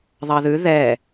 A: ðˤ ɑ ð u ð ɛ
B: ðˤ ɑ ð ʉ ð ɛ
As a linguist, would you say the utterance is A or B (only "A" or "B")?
B